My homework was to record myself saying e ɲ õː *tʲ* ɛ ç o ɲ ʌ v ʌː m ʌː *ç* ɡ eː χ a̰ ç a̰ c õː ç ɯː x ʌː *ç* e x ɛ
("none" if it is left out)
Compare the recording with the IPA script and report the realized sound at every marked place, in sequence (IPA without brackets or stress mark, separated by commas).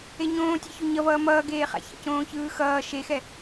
tʲ, none, ʃ